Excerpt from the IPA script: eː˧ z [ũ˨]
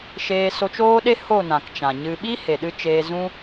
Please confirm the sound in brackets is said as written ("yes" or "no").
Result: no